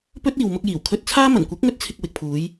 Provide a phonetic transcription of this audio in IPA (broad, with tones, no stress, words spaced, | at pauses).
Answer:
pɵ˥t̚iː˨wmʊ˧k̚ jiː˨˩wkʰɵ˧t̚t͡sʰaː˥ mɐ˨˩nkʷɪ˨˥k̚ŋɵ˧t̚t͡sʰɪ˨k̚ wɪ˨k̚pʰuː˨˧j